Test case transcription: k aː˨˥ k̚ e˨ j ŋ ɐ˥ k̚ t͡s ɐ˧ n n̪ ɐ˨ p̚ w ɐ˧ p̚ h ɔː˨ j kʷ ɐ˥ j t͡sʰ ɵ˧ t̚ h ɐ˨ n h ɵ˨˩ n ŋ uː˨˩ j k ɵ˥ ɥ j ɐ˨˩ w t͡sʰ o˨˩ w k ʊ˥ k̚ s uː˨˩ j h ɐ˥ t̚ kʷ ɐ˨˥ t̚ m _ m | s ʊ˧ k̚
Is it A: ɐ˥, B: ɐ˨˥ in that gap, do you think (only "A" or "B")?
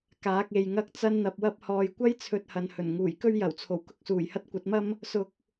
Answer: A